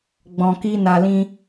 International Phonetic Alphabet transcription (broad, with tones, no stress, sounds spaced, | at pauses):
ɡ͡b ɔ̃˧ k i˦ n a˧ l ĩ˦